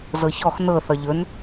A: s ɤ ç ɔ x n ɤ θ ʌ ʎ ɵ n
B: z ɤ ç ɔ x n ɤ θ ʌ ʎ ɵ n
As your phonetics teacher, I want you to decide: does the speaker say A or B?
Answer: B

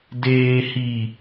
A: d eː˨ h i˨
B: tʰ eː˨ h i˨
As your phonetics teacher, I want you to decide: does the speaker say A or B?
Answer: A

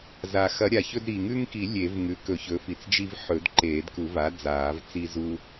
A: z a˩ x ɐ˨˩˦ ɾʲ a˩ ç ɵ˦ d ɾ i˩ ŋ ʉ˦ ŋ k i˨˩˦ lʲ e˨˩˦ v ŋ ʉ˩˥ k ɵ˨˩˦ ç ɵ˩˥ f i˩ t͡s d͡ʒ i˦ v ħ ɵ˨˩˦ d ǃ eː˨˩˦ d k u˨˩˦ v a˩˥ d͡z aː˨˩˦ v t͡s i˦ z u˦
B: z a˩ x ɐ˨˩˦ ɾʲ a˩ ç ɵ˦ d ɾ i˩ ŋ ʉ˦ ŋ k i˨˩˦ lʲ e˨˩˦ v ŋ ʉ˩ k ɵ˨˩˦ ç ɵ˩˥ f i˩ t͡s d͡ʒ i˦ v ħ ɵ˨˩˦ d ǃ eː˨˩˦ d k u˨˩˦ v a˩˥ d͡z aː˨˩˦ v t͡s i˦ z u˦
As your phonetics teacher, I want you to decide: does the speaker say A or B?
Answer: A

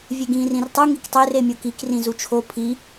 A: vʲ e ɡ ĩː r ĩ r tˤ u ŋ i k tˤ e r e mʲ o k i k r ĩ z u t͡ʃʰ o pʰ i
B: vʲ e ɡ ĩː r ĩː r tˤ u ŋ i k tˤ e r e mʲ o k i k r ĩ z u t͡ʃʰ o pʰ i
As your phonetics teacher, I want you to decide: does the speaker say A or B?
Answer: A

